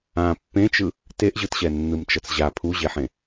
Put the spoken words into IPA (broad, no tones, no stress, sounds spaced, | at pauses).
ã pː ẽ t͡ʃ ɯ | t e ʔ ʑ ɯ t ɕ ɛ nː ɯ m t͡ʃ ʌ t͡s ʑ a pʰ u ʑ e ħ ẽ